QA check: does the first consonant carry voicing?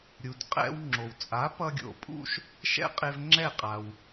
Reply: yes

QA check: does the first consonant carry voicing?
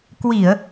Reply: no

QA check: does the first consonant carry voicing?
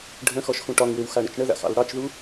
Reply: yes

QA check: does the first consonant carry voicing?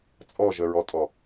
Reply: no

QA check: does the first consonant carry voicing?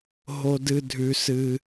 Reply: yes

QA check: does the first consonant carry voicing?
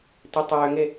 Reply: no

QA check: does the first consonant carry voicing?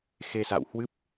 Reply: no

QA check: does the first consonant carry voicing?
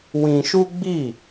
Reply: yes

